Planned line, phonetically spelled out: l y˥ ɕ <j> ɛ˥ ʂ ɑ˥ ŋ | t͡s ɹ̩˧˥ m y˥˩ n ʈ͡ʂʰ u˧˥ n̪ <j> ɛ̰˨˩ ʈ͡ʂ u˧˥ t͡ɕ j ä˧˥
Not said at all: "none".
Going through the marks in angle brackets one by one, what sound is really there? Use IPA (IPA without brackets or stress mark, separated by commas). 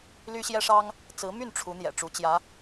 j, j